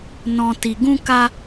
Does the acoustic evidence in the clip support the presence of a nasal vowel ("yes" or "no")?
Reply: yes